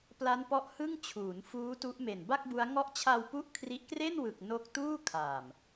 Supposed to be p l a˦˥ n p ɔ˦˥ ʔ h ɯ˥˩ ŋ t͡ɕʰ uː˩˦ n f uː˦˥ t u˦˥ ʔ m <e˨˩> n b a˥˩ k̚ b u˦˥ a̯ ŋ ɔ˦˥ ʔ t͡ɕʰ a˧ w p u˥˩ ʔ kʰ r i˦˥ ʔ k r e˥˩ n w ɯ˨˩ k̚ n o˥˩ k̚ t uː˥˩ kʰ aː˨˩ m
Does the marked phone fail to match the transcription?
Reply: no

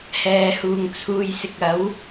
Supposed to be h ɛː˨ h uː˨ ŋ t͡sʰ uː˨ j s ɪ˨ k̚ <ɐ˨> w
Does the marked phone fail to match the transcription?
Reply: yes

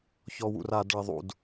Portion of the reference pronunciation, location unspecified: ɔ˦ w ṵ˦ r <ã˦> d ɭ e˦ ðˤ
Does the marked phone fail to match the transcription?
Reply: yes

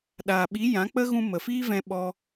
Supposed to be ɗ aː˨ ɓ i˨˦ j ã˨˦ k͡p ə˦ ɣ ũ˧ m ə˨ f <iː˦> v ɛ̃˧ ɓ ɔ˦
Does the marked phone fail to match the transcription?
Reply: no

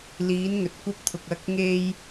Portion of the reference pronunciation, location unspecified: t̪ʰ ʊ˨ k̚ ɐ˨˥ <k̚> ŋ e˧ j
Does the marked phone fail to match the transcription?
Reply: no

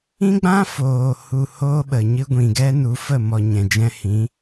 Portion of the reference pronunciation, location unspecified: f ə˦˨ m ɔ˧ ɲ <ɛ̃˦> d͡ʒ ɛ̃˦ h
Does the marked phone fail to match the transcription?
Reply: yes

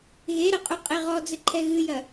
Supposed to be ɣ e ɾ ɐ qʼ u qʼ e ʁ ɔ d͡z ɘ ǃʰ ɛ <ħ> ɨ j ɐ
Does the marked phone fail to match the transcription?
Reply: yes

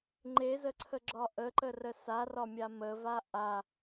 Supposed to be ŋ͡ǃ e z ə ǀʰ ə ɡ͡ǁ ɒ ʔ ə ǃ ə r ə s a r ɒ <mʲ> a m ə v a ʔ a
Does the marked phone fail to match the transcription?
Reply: no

